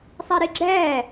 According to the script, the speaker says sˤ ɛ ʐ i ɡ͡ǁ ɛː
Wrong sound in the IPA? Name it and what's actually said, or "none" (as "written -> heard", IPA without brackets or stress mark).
ʐ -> ɾ